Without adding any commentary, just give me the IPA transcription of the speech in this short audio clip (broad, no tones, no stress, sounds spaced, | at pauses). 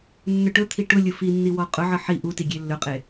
nː ɵ ʈ ɵ t̪ʰ i ʈ ʊ lʲ ʊ f i nː i w ɔ qʼ ʊ ʕ ə ħ i ʔ u t i ɡʲ e lː ɵ qʼ e